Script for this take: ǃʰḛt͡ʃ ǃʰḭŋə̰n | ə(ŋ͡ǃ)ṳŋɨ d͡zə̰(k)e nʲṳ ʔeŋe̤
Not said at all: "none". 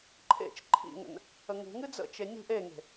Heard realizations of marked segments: ŋ, t͡ʃ

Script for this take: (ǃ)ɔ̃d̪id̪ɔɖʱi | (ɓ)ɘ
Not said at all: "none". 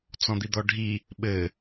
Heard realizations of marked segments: t͡s, ɓ

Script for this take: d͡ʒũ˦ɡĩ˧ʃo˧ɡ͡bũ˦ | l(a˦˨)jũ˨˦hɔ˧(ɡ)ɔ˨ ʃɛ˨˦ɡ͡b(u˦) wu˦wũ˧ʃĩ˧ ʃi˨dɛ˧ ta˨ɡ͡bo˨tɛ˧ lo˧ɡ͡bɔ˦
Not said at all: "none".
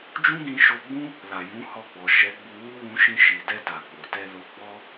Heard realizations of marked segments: a˨, ɡ͡b, u˧

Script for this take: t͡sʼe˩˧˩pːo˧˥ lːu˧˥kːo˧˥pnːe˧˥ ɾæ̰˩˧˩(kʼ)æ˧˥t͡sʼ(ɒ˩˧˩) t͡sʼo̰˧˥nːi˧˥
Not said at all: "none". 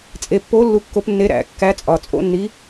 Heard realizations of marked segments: kː, ɒ˩˧˩

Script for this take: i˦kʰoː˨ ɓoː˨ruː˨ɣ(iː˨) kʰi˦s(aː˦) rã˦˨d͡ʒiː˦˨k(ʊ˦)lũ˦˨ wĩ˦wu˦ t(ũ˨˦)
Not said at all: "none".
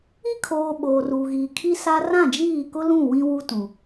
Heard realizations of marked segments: iː˨, a˦, ʊ˦, ũ˨

